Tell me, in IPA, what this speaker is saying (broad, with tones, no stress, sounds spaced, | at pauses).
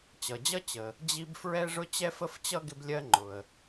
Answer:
t͡ɕ ʌ˩ d͡ʑ ʌ˥ t͡ɕ ə˩ | d͡ʑ i˥ b f ɹ ɛ˥ ʐ ʊ˥ t͡ɕ ɛ˥ f ə˥ f t͡ɕ ʌ˥ ɡ ɪ˥ b lʲ ɜ˥ ŋ͡ǃ ʊ˩ ə̯